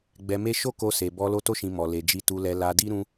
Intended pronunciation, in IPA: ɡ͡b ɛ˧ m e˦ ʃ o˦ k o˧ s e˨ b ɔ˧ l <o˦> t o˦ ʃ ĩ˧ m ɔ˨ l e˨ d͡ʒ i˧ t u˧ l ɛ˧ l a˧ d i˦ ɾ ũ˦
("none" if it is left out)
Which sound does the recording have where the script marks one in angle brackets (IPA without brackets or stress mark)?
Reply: o˦